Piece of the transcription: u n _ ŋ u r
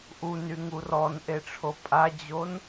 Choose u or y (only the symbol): y